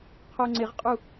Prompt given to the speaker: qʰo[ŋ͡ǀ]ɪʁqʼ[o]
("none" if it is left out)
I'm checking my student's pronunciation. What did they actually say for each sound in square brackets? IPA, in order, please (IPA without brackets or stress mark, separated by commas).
ŋ͡ǀ, u